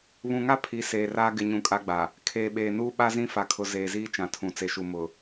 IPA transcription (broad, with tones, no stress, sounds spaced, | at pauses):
β ũ˨ ŋ a˦ pʰ i˨˦ s eː˨ r aː˦ ɡ ɪ˦ ɲ ũ˦ kʼ a˦ ɡ͡b a˨ | kʰ eː˨ ɓ eː˨ n uː˦ ɓ a˦ z ĩ˦ f a˨ kʰ ʊ˨ z eː˨ z iː˦ t͡ʃ ã˨ tʰ ũ˨ t͡s e˨ ʃ u˨ m ʊ˨